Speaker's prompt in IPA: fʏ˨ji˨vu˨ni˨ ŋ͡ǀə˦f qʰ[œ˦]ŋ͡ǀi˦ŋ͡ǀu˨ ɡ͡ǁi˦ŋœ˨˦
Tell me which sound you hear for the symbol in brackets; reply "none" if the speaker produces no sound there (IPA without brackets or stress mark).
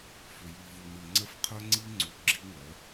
œ˦